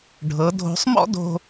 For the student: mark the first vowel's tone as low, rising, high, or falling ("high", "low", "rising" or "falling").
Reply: rising